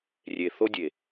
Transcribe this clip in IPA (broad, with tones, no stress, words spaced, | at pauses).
rʲe˨θo˦dʲe˨